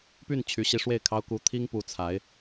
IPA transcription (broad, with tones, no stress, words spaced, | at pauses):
py˥˩n t͡ɕʰy˧˥ɕi˧˥ ʂwe˥˩ɪ̯kʰɑ˥ʊ̯ ku˧˥t̪ʰi˥ŋ pu˧˥t͡sʰa˧˥ɪ̯